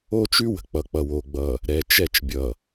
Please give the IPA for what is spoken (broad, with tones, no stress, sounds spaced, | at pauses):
o˦ t͡ʃ ʉ˦ w ə̤˨ k͡p ʌ˨ k͡p ʌ˨ w o˨ ɡ͡b ʌ˨ | ɾ ɛ˨ t͡ʃ ɛ˦˨ t͡ʃ bʲ ʌ˨